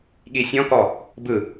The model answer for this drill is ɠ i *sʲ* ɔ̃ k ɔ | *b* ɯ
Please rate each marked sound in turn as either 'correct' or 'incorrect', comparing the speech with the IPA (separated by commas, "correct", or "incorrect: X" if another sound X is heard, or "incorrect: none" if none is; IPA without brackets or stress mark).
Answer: correct, correct